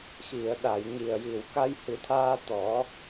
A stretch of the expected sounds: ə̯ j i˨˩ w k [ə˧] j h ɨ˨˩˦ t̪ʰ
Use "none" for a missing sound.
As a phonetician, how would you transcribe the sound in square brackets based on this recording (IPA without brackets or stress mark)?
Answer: a˧